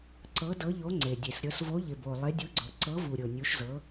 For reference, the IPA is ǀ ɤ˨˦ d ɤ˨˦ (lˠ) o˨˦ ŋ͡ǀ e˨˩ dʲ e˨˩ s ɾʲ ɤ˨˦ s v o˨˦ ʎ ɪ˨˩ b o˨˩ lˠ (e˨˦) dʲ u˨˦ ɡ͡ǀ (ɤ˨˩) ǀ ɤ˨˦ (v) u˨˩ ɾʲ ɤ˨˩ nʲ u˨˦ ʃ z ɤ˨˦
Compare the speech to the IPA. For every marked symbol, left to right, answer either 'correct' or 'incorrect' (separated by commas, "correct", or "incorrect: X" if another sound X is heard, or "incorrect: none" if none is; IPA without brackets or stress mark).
incorrect: ʎ, correct, correct, correct